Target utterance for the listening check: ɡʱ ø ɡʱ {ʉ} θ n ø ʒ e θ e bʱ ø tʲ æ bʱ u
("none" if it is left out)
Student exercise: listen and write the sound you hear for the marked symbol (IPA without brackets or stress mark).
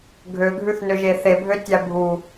ʉ